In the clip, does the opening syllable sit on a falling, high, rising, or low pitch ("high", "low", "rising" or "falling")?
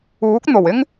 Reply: rising